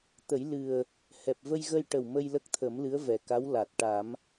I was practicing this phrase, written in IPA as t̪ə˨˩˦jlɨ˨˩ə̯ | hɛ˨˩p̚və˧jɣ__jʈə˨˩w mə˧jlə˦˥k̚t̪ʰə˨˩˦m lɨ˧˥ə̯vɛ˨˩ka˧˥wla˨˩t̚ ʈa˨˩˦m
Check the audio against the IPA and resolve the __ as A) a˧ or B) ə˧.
B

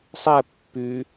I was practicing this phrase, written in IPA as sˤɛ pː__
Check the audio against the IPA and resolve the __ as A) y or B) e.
A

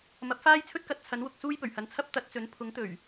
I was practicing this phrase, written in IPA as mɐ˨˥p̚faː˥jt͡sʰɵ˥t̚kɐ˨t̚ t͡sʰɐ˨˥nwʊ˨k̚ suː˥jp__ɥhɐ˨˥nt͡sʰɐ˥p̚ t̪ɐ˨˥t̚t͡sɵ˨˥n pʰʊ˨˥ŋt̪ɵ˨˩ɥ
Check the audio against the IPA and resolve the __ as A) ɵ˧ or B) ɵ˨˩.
B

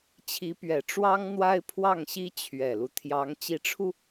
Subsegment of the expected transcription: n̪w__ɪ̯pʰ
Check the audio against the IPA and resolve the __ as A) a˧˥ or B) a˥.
B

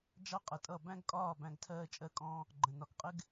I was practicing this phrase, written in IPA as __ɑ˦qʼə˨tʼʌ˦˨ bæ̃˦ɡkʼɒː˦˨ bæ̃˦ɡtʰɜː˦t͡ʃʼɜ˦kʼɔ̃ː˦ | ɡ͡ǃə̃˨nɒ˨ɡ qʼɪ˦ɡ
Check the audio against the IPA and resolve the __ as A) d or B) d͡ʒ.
B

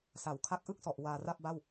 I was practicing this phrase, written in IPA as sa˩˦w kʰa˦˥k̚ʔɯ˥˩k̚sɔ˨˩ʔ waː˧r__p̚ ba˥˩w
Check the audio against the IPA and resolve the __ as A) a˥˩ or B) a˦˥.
A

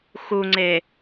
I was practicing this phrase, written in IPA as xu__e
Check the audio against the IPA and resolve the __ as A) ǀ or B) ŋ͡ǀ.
B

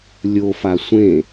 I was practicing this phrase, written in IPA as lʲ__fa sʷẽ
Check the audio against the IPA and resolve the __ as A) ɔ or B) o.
B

